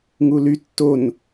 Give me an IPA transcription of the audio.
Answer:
ŋ u l y tː o n

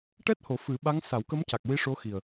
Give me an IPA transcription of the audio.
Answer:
ʈ ɛ˦˥ t̚ h o˨˩˦ f ɨ˨˩˦ ɓ a˧˥ ŋ s a˨˩˦ w k ə˧˥ m c a˨˩ k̚ w i˧˥ ʂ o˧˥ x i˨˩ ə̯

